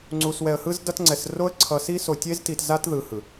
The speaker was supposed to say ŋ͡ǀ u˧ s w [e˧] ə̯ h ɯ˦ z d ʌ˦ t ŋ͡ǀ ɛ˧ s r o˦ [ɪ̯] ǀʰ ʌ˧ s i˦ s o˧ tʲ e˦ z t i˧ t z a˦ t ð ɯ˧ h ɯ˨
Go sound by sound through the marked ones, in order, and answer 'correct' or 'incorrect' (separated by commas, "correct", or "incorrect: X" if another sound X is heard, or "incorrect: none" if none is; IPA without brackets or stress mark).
incorrect: ɛ˧, incorrect: ə̯